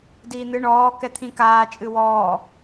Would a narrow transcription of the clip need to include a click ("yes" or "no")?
no